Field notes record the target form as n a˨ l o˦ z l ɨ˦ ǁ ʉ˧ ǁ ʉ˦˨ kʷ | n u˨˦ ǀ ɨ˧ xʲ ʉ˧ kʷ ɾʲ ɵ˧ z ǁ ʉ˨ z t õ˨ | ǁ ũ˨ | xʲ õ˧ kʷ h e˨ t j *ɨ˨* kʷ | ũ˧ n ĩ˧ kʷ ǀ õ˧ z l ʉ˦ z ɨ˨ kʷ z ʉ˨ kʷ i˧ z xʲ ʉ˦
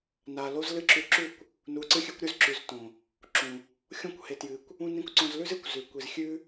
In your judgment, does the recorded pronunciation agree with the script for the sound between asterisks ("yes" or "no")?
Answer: yes